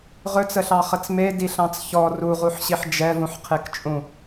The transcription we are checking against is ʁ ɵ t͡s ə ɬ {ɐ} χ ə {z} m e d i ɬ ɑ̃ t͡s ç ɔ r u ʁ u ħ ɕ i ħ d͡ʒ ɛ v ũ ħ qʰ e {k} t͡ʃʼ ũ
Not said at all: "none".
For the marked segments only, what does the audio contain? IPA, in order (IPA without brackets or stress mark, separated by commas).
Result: ɑ, t͡s, k